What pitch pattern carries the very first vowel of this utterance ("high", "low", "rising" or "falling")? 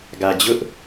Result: low